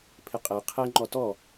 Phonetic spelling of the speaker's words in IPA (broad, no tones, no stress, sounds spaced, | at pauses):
pʰ ɪ qʼ ɛ qʰ ɛ ŋ͡ǃ ɔ t ɔ